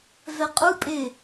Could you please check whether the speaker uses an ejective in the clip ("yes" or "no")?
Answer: yes